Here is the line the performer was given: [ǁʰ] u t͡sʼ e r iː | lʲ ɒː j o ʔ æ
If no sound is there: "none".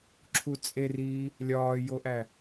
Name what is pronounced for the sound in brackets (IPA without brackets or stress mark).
ǁʰ